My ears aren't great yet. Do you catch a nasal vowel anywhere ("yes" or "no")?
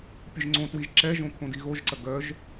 yes